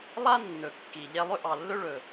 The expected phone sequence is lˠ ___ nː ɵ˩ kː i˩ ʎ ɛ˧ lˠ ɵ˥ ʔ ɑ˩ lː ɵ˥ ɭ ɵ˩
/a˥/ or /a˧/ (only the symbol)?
a˥